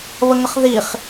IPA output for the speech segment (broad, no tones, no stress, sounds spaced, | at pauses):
β ə ŋ ə χ ð i χ